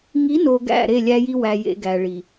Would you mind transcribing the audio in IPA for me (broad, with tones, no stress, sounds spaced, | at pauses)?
ŋ i˨˦ n o˨ ɡ æ̰˦˨ ɾ e˦˨ lʲ æ˦ j i˦ w æ˨ j ḛ˨ ɡ æ˨ ɭ i˨